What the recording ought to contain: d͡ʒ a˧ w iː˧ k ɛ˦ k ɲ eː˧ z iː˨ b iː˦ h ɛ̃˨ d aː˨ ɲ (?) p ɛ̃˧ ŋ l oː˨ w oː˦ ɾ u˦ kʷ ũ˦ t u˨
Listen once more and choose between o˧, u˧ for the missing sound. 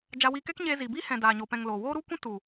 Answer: o˧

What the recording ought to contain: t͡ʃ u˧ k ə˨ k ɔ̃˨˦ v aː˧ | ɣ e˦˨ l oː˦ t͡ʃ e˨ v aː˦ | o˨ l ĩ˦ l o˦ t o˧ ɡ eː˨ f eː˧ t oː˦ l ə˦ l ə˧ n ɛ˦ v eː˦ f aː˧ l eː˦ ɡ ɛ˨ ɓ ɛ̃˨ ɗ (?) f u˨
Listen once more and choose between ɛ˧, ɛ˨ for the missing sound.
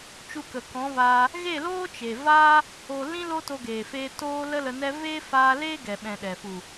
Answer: ɛ˨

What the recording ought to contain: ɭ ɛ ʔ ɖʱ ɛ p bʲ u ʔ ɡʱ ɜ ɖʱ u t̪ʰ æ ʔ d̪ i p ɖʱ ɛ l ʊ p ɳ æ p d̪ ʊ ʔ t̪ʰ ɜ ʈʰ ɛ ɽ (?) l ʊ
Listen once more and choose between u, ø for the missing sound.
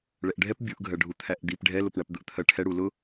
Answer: u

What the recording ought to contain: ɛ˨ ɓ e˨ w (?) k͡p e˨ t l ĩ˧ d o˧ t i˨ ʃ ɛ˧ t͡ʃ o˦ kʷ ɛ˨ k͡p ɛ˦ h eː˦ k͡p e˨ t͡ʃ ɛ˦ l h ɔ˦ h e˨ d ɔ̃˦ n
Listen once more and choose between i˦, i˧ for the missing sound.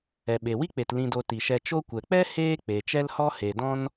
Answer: i˦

